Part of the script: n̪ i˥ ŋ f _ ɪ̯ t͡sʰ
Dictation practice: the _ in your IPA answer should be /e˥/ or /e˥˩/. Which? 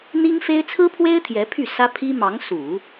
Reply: e˥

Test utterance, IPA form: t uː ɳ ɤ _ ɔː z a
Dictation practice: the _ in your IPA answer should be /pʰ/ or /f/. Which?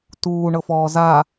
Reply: f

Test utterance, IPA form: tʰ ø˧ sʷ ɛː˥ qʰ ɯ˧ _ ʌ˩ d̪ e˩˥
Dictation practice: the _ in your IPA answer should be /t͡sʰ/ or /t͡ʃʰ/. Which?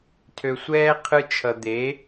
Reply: t͡ʃʰ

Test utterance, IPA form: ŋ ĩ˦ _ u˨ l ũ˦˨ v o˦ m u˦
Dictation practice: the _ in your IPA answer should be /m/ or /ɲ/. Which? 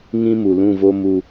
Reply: m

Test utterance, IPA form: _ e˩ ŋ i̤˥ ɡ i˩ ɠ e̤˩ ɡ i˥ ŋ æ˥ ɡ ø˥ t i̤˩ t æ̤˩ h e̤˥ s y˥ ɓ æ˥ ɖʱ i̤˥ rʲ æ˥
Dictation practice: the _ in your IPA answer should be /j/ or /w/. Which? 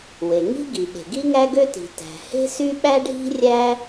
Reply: w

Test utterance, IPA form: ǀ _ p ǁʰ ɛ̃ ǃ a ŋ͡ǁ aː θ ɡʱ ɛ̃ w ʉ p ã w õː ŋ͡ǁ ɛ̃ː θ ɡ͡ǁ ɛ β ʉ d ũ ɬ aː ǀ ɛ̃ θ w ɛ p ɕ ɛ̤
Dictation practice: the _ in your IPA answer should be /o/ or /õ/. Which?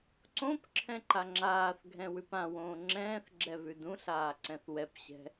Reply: õ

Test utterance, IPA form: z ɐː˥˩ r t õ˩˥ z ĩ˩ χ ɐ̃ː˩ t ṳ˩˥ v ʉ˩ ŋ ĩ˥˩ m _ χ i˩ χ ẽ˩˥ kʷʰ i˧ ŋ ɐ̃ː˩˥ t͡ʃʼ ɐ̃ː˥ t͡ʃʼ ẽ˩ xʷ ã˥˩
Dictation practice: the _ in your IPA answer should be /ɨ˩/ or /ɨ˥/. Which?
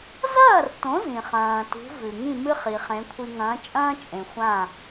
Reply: ɨ˥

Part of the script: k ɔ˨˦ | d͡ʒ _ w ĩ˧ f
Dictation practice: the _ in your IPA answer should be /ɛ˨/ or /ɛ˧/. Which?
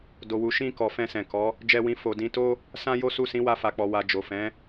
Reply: ɛ˧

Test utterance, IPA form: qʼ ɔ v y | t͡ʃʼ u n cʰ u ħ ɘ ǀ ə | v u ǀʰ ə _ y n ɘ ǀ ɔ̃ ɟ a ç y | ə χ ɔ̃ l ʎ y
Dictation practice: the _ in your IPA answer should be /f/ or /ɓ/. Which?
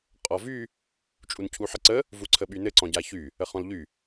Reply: ɓ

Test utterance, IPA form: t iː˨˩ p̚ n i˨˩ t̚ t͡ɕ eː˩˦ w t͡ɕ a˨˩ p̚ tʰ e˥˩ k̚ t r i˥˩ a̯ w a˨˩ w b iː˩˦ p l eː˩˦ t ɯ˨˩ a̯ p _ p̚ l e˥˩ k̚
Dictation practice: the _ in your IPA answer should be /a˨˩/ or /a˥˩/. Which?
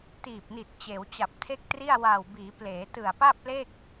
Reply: a˥˩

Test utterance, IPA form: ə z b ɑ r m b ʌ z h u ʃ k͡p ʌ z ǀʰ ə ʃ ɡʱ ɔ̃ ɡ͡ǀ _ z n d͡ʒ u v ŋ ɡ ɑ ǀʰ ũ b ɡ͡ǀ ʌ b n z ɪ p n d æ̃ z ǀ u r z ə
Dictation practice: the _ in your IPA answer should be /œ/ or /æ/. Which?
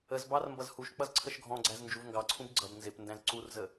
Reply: æ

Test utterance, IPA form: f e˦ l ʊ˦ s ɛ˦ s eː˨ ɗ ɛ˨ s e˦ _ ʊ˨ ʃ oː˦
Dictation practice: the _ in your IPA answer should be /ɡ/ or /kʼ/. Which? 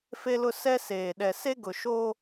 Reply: ɡ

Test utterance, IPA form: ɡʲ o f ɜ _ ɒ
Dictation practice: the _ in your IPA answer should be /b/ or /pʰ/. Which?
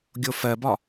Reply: b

